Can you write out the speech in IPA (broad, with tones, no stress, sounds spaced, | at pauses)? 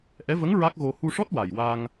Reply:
ʔ ɛ˧˥ v ə˧˥ ŋ ɹ a˦˥ k̚ ɣ o˧ h u˧ ʂ ɔ˦˥ t̚ w a˨˩ j w a˧ ŋ